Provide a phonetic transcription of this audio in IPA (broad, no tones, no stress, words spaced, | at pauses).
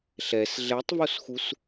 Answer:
ɬɛs ɮɛtˤvosxus